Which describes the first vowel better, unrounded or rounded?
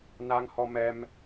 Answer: unrounded